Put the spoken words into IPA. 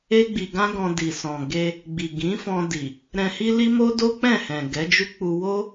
e˦ ɡ͡b i˧ ɡ ã˦ ɡ ɔ̃˧ d i˨ s ɔ̃˨ ɡ e˧ | ɡ͡b i˨ ɡ ĩ˨˦ f ɔ̃˧ d i˨ | ɾ ɛ̃˧ h i˦ l i˦ m o˦ d o˦ k͡p ɛ̃˦˨ h ɛ̃˨ ɡ ɛ˨˦ d͡ʒ u˦ k͡p u˧ w o˦

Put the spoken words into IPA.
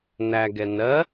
n æ ɡ ɛ n ɜ

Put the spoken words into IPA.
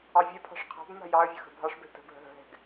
ɑ vʲ ɛ pʰ ɑ̤ ʂ qʰ a̤ b m a̤ j ɑ ə̯ vʲ ə x ə̤ bʱ ɑ ʂ b ɛ̤ t ə̤ b ɦ ə̤ ɦ ə̤ ɦ ɛ̤ ɡ

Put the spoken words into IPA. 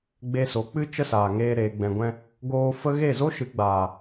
ɡ͡b e˧ s o˨˦ k͡p ɨ˦ t͡ʃ ə˦ s aː˨ ŋ eː˧ ɾ eː˨ ɡ͡b ɛ̃˨ ɡʷ ɛ̃˧ | ɡ oː˧ f ə˦ ɣ e˦˨ z o˦ ʃ ɨ˨˦ ɡ͡b aː˨

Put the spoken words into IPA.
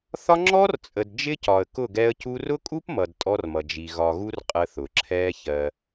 θ ɒ˦ ŋ͡ǁ ɔ˦ r t͡sʼ ə˨ d d͡ʒ ɪ˦ c ɒ˨ ə̯ k ʊ˦˨ ɡ ɛ˦ ə̯ c u˦ r ʊ˦ kʼ u˦ p m ʌ˨ d tʼ ɔ˦ r m ʌ˨ d͡ʒ i˨ ɣ ɒ˨ ɣ u˦ r qʼ ə˦ θ ʊ˨ ǁʰ ɛː˦ ç ɜ˦

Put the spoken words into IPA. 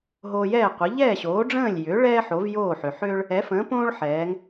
ɦ oː˧ j ɛː˥˩ qʷ ə˩˥ ʎ ɛː˥˩ ɕ oː˩˥ ɖ͡ʐ ə̃ː˥˩ lʲ j ʏː˩˥ ɭ ɛː˥ ħ o˩˥ v j oː˥˩ ħ ʏ˩ ħ ʏː˥ ɭ | ɛ˩˥ f ə̃ː˩˥ p õː˥ ɭ ħ ɛː˩˥ ŋ

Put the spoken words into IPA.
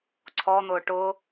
ǀʰ ɔ n̪ ʊː ʈ ʊ

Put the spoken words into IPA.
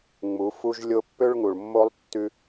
ŋ͡m u˨˦ f u˦ ʒ lʲ o˦ pː ø˦ ɭ ŋ u˨ ɭ mː o˦ lˠ tː ʉ˦

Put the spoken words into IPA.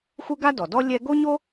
xʷ ɯ˥ ɡ a˥ d ɔ˩ d ɔ˥ lʲ ɛ˥ ɡ o˥ ɲ o˥

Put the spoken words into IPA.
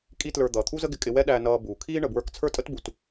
kʼ i˥ t l ə˞˧ d̪ ʌː˩ t̪ʰ u˥ z ə˥ ɡ ɪ˧ kʼ ɪ˧ w ɛ˥ ɗ æ˧ n ʌː˧ b uː˩ kʰ iː˥ ɳ ə˩ b w ə˞˧ k t͡sʰ ə˞˥ tʼ ə˥ t b u˩ t

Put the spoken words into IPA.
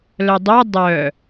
l œ dˤ o dˤ œ

